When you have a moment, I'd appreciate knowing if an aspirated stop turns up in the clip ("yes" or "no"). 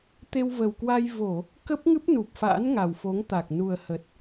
no